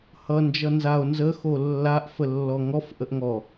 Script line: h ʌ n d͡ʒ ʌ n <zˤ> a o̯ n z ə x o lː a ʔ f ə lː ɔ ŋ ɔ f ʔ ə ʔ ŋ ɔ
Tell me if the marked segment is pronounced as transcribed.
no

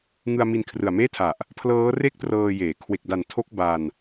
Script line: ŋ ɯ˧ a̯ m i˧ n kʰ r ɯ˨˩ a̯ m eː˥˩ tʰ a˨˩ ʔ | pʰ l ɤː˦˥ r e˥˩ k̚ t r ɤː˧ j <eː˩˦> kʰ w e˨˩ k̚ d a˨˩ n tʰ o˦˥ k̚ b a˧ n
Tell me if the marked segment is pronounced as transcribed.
yes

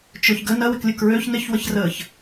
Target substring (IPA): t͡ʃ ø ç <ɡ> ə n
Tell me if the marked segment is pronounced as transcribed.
yes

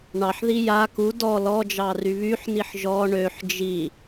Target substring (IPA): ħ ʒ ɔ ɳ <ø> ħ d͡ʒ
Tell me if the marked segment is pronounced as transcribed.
yes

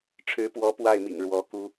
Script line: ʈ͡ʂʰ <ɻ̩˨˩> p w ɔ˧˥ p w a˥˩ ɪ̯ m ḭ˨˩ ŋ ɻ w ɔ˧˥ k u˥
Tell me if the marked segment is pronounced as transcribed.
no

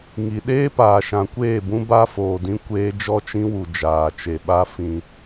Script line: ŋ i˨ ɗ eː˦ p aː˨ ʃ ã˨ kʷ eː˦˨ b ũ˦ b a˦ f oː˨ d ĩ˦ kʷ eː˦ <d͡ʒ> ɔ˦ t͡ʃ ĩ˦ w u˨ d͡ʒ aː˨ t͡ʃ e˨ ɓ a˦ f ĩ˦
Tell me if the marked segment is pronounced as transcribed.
yes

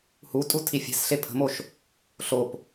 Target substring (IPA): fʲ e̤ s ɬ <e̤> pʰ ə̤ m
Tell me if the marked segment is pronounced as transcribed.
no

